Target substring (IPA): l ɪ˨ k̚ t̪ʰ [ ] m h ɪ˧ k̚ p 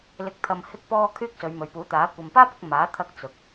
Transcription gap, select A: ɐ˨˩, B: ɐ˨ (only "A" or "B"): B